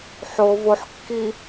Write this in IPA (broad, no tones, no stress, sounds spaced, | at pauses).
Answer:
ħ o v o ħ kː i